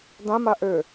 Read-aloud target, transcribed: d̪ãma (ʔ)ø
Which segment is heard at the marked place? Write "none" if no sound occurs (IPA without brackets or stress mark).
ʔ